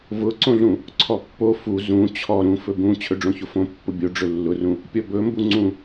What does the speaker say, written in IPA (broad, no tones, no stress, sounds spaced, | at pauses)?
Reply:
v ʊ ǀ õ ɮ ũ | ǀʰ ɔ pː o f u z ũ t͡ɕʰ ɔ ɾ ũ f ɵ b ũ t͡ɕʰ ɵ ɖ͡ʐ õ ç ʊ f õ pː ʊ bʲ o ɖ͡ʐ ɵ lː ʊ r ũ | pʲ ɔ b ɵ m b u ŋ͡ǀ ũ